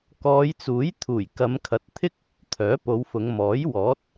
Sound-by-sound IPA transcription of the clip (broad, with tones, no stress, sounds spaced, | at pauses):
k ɔː˨˧ j t͡s uː˨˥ j t̪ʰ uː˨˩ j k ɐ˨˧ m kʰ ɐ˨˥ t̚ t̪ʰ ɪ˥ k̚ | t̪ʰ œː˨˥ p o˨˧ w f ʊ˨˧ ŋ m ɔː˨˥ j w ɔː˨˥ t̚